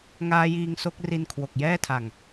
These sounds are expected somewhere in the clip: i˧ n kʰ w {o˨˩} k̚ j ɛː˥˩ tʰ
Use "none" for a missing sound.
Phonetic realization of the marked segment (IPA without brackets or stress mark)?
o˨˩